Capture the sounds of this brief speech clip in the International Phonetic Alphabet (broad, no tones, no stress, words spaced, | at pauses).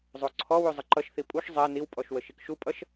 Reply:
zˤoǀʰɔwu zˤəǃʌʃθi pʼuʃ zˤɛ niwpʼɔʃ wəʃikʃupʼʌʃ